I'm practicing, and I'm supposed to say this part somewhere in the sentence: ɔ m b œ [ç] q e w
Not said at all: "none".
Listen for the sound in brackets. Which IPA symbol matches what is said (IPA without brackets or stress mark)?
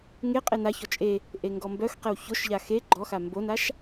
x